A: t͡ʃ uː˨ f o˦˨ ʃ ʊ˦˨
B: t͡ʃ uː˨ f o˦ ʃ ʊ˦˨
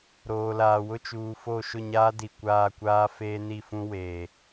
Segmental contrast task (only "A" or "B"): A